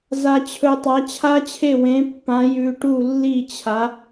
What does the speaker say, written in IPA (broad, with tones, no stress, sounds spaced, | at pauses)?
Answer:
z a˧ t͡ɕʰ ɵ˧ tˤ a˨˥ t͡ɕʰ a˦˥ t͡ɕʰ e˥˩ w ẽ˨˥ pː ã˨˥ j ʉ˧ ʈ u˥˩ lː i˥˩ t͡ɕʰ a˨˥